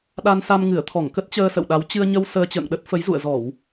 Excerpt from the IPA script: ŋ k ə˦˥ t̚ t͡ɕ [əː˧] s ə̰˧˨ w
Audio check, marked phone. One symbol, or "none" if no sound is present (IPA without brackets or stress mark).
əː˧